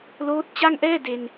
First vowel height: mid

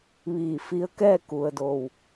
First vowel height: high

